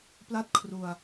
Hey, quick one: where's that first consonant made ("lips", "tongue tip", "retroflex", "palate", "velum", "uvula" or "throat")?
lips